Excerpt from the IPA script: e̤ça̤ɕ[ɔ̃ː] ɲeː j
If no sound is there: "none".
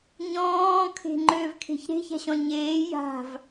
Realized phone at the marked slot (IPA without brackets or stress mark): ɔ̃